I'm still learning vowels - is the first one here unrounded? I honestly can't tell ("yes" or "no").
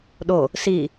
no